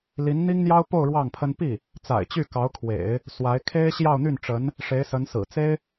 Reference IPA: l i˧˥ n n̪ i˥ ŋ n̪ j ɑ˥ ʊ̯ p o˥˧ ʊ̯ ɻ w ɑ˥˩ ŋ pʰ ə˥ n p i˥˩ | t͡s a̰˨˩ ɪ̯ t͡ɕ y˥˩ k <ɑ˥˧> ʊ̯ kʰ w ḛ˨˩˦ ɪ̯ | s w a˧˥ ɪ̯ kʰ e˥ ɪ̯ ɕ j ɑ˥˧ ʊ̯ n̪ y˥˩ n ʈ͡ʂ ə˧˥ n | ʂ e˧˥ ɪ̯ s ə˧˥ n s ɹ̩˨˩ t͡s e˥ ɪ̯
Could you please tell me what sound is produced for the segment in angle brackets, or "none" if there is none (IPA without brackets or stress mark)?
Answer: ɑ˧˥